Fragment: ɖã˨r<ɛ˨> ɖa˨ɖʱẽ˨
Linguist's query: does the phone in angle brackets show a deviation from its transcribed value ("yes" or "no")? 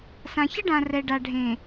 no